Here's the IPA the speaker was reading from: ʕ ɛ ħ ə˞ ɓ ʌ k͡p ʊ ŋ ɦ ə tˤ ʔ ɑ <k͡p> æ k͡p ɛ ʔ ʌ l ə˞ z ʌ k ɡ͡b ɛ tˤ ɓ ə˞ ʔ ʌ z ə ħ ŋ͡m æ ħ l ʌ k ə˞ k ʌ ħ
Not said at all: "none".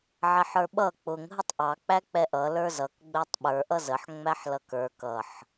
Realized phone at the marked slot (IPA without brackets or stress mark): k͡p